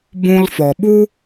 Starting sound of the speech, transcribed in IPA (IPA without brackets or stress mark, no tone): b